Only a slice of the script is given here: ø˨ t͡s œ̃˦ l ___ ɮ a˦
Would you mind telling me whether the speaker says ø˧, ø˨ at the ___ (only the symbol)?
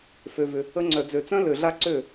ø˨